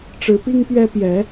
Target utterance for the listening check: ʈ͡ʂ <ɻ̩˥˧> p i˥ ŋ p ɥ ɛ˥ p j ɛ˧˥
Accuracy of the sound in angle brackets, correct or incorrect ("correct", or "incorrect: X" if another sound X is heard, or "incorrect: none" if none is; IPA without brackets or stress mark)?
incorrect: ɻ̩˧˥